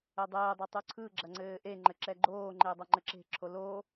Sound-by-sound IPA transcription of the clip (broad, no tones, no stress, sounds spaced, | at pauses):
ɘ dˤ ɘː dˤ o tˤ u ǀʰ ɯ ɡ͡ǁ ɐ ŋ͡ǀ ɘː ʔ e ŋ͡ǃ ɘ ǁ ɛ ɡ͡ǃ oː ŋ͡ǃ e dˤ ɐ ŋ͡ǃ ɘ ǁ e̤ ǁʰ o l o